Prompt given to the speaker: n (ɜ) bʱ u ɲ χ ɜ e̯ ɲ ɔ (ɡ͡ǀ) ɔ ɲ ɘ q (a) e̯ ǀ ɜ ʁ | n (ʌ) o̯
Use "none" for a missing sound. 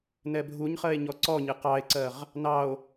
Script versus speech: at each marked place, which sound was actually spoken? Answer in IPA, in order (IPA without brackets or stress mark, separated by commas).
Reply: ɛ, ǀ, ɑ, ɑ